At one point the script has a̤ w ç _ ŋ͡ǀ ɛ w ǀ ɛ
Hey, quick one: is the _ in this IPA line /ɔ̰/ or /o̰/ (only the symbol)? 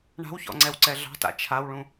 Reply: ɔ̰